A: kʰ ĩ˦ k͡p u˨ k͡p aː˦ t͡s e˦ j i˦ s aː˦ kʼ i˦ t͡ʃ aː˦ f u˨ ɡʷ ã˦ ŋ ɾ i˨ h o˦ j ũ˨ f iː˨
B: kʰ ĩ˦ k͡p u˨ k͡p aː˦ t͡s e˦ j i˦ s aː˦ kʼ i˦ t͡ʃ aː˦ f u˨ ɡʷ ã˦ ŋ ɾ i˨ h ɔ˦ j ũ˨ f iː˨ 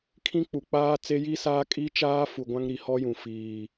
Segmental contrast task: B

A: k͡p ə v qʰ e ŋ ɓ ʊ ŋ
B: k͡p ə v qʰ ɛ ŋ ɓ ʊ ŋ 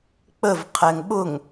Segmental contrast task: B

